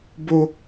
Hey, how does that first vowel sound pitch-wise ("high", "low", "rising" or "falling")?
high